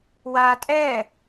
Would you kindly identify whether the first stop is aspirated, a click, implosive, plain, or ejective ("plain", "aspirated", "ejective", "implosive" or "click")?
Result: ejective